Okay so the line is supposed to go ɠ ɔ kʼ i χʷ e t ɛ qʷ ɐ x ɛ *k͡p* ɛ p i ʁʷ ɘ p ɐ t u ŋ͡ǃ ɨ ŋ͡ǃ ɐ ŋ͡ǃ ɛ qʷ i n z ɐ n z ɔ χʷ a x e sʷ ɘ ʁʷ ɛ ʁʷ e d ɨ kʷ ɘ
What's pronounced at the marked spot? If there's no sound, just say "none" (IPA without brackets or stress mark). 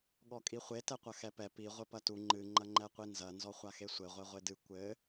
p